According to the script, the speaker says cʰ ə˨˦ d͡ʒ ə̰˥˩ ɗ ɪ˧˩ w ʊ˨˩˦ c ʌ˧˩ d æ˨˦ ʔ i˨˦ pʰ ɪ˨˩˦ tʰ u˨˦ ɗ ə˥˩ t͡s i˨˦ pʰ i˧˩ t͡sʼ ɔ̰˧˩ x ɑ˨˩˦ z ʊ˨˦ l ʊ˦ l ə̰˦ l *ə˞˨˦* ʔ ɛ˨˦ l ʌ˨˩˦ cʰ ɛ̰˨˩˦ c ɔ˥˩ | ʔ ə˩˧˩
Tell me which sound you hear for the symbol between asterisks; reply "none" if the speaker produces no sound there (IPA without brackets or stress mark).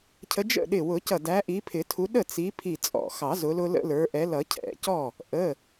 ə˞˨˦